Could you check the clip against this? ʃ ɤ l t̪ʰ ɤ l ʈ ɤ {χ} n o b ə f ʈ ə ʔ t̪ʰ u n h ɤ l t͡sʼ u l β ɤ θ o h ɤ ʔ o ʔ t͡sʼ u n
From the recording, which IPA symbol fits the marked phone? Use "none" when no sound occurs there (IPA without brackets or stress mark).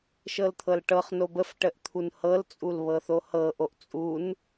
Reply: χ